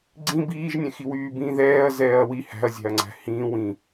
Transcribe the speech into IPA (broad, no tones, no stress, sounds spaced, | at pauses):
ɡ͡ǀ ĩ b iː ʒ nʲ ɛ̃ x i w yː b ĩ ð ɛː ɐ̯ z ɛː ɐ̯ w i h æ̤ ɐ̯ zʲ æ̤ ɐ̯ ŋ͡ǀ æ̤ h ĩː w ĩ